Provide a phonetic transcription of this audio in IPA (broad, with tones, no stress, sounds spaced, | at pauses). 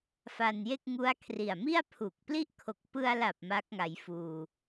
f a˧ n j e˥˩ k̚ ŋ u˦˥ a̯ kʰ r i˨˩ a̯ m i˥˩ a̯ pʰ u˨˩ k̚ p l i˥˩ ʔ kʰ o˨˩ k̚ p ɯ˧ a̯ l a˨˩ p̚ m a˦˥ k̚ ŋ a˩˦ j f uː˨˩